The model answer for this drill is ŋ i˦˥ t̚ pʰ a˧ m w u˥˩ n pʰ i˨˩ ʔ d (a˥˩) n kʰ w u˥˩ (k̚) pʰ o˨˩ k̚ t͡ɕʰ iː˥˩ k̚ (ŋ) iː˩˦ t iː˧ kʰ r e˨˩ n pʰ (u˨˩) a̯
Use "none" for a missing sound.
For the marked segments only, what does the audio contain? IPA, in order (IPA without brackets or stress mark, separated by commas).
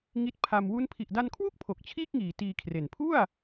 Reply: a˧, k̚, ŋ, u˥˩